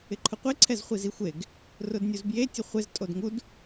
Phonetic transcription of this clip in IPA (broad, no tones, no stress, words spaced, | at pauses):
ɪǃʰʊqʷe ǀʰɛzχʷizixʷeɡ | rʊdnʲuzbje tʲʊχʷez tʼodŋud